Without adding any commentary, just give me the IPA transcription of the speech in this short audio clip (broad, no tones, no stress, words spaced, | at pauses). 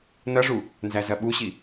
nɐʐu | nzæzɐɓuɕi